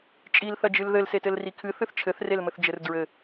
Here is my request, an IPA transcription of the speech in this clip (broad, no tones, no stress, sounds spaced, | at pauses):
t͡ʃʼ i l θ ɐ d͡ʒ ɨ l ð ɘ l s e t ɘ l r i kʰ ɨ θ ɨ θ t͡ʃʰ ɘ θ r e l m ɘ θ d͡ʒ ɘ r d ɹ ɘ